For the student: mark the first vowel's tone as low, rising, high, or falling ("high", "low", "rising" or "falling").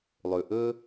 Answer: low